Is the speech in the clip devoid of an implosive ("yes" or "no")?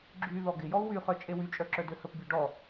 yes